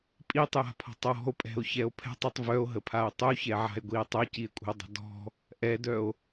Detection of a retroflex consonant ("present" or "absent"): absent